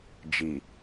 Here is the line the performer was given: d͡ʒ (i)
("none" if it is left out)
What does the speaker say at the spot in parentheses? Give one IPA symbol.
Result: i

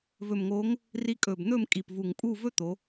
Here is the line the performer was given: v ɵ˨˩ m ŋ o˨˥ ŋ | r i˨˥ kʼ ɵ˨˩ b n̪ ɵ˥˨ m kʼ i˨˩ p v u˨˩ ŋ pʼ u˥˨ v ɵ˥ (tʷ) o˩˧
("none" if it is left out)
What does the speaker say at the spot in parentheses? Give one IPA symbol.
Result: t̪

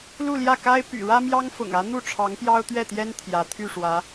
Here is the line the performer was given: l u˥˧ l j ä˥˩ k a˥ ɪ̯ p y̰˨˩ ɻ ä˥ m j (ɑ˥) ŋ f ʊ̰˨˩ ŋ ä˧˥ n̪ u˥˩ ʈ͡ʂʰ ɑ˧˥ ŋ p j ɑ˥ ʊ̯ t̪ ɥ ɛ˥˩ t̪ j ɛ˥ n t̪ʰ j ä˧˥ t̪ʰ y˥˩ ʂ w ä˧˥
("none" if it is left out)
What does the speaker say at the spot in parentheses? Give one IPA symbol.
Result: ɑ˥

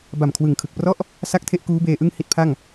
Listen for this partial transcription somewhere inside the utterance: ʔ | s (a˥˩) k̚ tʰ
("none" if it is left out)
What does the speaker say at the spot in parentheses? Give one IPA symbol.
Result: a˥˩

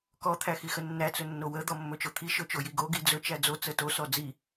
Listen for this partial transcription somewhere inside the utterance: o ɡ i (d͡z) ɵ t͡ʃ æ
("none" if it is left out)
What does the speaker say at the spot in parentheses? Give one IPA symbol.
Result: d͡z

